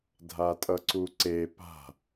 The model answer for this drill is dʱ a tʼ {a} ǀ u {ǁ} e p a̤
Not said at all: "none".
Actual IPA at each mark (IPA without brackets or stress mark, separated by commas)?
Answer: ʌ, ǀ